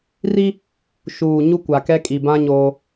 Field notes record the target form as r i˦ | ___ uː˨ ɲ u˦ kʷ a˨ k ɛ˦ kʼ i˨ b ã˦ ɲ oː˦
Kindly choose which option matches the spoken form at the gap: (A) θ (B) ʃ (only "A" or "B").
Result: B